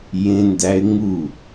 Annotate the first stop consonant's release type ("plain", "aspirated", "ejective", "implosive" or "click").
plain